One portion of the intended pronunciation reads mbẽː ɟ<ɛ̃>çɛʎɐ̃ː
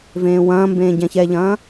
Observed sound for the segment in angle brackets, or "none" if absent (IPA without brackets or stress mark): ɛ̃